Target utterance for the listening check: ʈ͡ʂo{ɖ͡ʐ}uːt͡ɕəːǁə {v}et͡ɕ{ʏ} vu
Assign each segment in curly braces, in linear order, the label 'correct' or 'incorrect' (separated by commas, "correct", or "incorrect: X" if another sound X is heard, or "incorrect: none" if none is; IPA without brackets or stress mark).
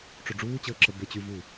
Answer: correct, incorrect: b, incorrect: y